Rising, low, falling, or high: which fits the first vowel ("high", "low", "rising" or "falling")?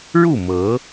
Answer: falling